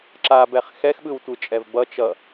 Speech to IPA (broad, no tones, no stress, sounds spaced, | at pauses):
ǁ a b ɛ χ x ɛ x ɓ ɯ w tʷ ɯ t͡ʃʼ ɛ v b ʌ t͡ʃ ʌ